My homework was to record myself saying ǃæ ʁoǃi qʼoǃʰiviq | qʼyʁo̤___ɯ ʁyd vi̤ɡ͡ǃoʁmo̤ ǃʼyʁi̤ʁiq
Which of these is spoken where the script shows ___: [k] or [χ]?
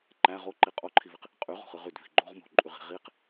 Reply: χ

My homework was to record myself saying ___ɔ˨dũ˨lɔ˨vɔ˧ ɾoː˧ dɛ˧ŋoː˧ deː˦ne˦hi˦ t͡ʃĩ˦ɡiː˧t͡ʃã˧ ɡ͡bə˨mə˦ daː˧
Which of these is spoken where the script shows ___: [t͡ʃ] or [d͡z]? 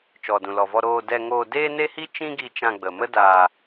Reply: t͡ʃ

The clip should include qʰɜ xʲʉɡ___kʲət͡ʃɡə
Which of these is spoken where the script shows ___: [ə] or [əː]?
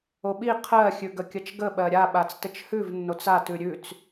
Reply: ə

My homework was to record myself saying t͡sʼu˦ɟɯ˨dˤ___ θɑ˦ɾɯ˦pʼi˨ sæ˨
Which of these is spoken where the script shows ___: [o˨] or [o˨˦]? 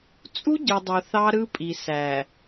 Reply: o˨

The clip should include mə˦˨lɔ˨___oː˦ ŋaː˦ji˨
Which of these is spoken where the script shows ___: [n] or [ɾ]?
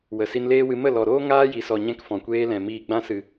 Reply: ɾ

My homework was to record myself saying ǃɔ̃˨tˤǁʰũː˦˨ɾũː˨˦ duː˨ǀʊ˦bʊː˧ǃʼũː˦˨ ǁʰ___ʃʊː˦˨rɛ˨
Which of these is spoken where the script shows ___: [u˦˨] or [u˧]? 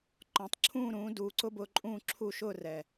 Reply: u˦˨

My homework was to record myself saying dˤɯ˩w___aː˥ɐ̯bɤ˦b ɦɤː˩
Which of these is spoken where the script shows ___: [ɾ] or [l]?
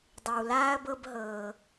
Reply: l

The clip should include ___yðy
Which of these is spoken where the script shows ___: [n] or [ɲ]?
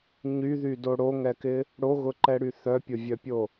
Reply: ɲ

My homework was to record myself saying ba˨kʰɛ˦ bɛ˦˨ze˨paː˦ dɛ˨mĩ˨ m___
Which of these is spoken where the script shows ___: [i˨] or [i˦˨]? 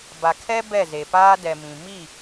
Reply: i˦˨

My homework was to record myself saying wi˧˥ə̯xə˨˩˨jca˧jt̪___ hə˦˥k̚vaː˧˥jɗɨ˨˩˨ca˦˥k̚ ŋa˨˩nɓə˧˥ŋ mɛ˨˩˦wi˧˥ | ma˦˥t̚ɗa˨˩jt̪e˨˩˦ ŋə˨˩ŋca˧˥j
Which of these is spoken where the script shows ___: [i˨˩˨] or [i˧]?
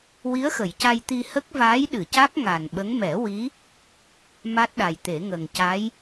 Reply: i˧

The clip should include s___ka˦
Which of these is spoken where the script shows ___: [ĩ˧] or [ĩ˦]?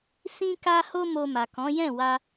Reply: ĩ˦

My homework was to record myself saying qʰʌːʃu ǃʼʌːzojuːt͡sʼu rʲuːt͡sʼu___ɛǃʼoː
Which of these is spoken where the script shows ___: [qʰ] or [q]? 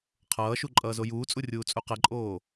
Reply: q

